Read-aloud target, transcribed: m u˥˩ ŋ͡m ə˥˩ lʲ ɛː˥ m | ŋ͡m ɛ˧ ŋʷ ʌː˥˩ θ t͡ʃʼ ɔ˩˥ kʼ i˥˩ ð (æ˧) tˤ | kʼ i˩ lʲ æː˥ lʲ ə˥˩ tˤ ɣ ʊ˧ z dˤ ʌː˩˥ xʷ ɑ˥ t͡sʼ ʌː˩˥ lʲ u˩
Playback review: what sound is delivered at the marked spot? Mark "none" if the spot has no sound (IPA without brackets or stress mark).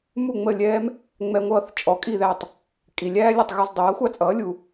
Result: æ˥˩